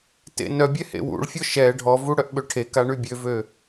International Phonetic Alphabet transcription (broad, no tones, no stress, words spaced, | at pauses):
tḛnœbʲɛ hḛwṵɭfʲɔ ʃɛ ɖʱɔvu ɽœʔɓøʈʰeka ɳybʲøvø